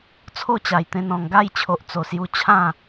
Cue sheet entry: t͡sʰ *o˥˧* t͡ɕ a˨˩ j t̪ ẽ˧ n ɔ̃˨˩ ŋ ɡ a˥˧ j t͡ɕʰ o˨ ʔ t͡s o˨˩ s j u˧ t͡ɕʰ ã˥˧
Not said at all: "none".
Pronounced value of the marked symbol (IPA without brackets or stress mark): o˥˧